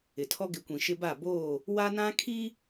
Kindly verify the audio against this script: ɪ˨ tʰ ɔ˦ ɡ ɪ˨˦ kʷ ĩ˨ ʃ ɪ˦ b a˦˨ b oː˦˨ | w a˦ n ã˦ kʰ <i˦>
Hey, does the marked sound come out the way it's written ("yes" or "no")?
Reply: yes